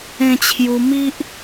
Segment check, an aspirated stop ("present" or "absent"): present